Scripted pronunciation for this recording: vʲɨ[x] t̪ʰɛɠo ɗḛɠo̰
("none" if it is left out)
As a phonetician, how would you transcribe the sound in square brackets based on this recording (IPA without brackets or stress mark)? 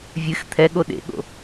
x